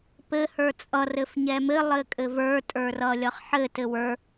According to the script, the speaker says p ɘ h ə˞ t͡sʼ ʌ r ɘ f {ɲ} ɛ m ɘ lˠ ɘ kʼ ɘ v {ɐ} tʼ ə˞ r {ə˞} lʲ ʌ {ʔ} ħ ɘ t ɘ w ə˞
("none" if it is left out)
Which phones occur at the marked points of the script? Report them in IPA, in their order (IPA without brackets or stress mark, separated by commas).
ɲ, ə˞, ʌ, χ